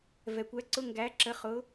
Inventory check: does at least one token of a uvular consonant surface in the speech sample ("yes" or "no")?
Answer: yes